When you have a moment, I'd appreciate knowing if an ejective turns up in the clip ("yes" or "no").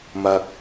no